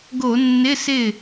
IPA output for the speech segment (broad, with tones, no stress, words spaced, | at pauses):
ɡo˧˩˧nːɪ˧˥˧sɪ˥˩